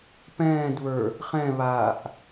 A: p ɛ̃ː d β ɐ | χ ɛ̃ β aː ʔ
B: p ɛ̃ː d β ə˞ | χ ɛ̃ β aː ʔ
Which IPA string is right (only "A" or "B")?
B